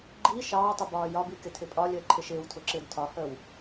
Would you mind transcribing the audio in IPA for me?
ɡ͡ǃ i ʃ ɑː tˤ ʊ b ɒː j ɒ b i k ɪ tʰ ɪ pʼ ɒ lʲ əː ǃʰ ɪ ʃ ɪː w tʰ ʊ ǁ ɪː d tʰ ɒ h əː w

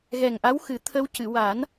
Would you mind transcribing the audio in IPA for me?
ɣ ɛ˨˩ ŋ ʔ a˧˥ w x ɨ˨˩˦ t̪ʰ ə˧ w c ɨ˨˩˨ w a˨˩˦ n

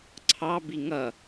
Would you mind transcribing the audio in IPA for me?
ǀʰ ɑ b i ŋ ʌ

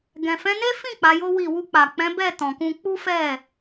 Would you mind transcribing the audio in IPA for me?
ɡ ɛ̃˨ f ɛ̃˨˦ n e˦ f ĩ˦˨ k͡p a˨˦ j o˦ w i˦˨ w u˧ k͡p a˨ k͡p ɛ̃˨˦ b ɛ˦˨ t ɔ̃˨ k ũ˧ k͡p u˦ f ɛ˦˨

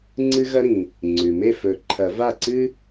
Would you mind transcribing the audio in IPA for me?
ŋ͡ǀ ɨ˦ ɣ ɐ˦ ɾ ĩ˩ | ŋ͡ǀ ʉ˩ m e˥˩ f ɵ˨˩˦ ǃʰ ɐ˨˩˦ v a˥˩ ǀ ɨ˦

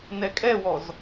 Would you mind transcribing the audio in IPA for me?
n ɛ kʼ ɛ w ɔ z

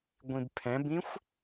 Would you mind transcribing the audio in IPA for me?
ɡʷ ĩ b pʰ ɛ̃ b ĩ xʷ

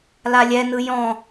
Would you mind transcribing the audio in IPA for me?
l a lʲ ɛ n ɯ j ɔ̃

